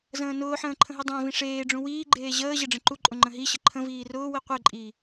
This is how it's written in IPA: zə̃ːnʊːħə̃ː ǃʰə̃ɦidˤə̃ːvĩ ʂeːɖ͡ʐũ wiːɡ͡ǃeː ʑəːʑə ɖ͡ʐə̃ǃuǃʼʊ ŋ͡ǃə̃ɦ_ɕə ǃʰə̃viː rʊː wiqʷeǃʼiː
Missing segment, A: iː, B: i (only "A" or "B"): B